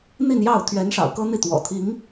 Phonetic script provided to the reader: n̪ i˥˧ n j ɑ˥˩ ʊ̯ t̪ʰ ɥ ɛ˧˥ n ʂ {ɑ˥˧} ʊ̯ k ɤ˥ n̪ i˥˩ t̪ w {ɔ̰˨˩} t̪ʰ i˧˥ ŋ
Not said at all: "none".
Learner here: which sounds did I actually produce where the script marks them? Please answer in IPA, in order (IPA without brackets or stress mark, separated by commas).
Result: ɑ̰˨˩, ɔ̰˨˩